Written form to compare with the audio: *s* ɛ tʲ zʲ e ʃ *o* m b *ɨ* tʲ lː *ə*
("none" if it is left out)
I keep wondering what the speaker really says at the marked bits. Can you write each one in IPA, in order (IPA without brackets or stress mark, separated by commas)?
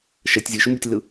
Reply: ʃ, u, ɨ, ɯ